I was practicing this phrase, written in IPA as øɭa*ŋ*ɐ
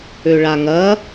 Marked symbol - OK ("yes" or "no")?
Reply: yes